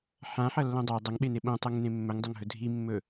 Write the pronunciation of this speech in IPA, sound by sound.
ħ ã ħ ɐ lː õ dˤ a dˤ ɐ ŋ ɓ e n e ɓ õ tˤ o ŋ n ẽ mː ɵ ŋ dˤ ɐ ŋ ɦ ɵ dʱ i mː ɵ

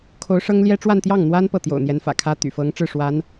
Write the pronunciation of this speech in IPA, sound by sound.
kʰ o˧˥ ʊ̯ ʂ ɤ˥ ŋ l j ɛ˥ ʈ͡ʂ w a˥˧ n t̪ j ɑ˥˩ ŋ n̪ w a˥ n p ɤ˥˩ t̪ j o̰˨˩ ʊ̯ n̪ j ɛ˧˥ n f ä̰˨˩ kʰ ä˥ t̪ y̰˨˩ f ɤ˧˥ ŋ ʈ͡ʂ ɻ̩˥˩ ʂ w a˧˥ n

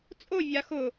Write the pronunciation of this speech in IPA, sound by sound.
t͡sʼ o vʲ a x ʊ

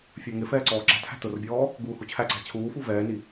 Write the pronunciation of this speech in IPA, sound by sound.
fʲ ə˞ ŋ ɪ f ɛː ǀ ɔː ǁ æ̤ t h æ̤ t ʊ r bʲ ɔː | ɡ uː h u t͡ɕʰ æ ǀ æ̤ t͡ɕʰ uː f u v ɛː n i

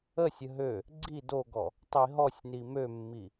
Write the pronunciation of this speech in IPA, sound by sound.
ə sʲ ə ɦ ø | ɡ͡ǀ i d o ɡ ɔ | tˤ i ɦ ɔ sʲ n i m ø mː i

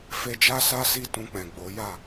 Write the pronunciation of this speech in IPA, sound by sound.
f e˧ d͡ʒ a˦ s a˦ s i˦˨ t ũ˧ k͡p ɛ̃˨ ɡ͡b o˨˦ j a˦˨

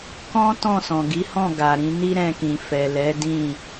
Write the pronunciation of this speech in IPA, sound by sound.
k ɔ̃˦ t ɔ̃˦˨ s ɔ̃˨ ɡ i˨˦ h ɔ̃˦˨ ɡ a˨ ɾ ĩ˧ n i˦ ɾ ɛ̃˧ k ĩ˨ f ɛ˨ l ɛ˨˦ d ĩ˦˨

